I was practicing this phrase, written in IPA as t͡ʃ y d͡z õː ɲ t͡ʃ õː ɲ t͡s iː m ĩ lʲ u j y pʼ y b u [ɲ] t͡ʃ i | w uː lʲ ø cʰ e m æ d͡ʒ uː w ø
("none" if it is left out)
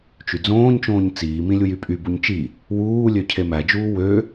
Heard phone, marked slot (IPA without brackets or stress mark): ɲ